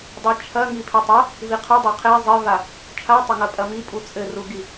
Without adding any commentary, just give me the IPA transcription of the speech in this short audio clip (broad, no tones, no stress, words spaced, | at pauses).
dˤit͡ʃʰɐ ŋipʰetˤɐ | viqʰɘdˤa qʰe zˤɘva | t͡ʃʰatˤɐŋɐ pʼɐmipʼu t͡sʼɘruɡi